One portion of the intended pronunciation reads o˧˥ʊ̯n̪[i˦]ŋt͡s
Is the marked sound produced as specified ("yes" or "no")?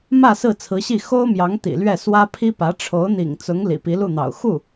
no